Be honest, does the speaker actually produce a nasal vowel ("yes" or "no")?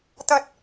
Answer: no